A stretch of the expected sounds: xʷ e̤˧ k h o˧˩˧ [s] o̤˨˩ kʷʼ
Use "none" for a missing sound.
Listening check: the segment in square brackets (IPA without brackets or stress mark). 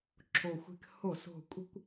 s